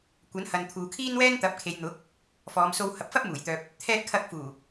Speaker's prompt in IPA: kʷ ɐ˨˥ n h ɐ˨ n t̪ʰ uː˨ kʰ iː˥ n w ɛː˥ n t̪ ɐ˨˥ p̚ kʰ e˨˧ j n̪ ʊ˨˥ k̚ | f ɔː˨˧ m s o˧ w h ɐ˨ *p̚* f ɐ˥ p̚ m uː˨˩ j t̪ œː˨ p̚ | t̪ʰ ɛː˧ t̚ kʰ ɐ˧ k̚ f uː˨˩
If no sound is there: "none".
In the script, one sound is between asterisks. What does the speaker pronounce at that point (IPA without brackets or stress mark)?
p̚